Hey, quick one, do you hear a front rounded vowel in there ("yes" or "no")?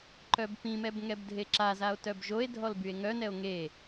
yes